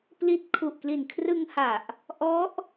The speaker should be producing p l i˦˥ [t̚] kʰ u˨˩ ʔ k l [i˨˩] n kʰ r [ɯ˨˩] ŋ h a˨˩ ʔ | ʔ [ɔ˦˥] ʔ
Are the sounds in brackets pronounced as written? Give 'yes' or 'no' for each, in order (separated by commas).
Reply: yes, yes, no, yes